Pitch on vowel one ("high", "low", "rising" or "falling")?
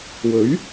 rising